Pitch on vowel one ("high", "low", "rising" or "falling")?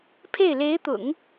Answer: falling